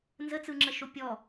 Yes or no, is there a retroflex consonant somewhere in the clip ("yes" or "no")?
no